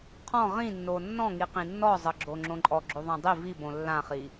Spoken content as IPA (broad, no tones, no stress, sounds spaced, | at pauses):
qʰ ɔ̃ ʁ ĩ nː o nː ɔ̃ ŋ i q ĩ nː ɔ zˤ ɤ ɡ͡ǁ o ŋ͡ǁ õ ǃʼ ɔ ɡ͡ǁ o ðˤ ã dˤ i v i b õ lː ã χ i